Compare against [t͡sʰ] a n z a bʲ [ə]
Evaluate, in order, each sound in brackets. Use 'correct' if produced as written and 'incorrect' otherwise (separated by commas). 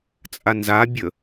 incorrect, correct